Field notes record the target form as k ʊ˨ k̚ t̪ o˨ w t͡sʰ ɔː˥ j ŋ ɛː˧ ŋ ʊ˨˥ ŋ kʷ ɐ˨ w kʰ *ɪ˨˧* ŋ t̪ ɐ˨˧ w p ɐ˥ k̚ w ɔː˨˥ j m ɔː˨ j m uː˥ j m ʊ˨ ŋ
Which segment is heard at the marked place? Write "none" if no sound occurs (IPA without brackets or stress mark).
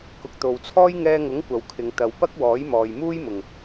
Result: ɪ˨˧